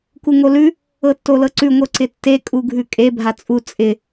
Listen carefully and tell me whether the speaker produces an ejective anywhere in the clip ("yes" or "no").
yes